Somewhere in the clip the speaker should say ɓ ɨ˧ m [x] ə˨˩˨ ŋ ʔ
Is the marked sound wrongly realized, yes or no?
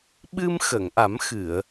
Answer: no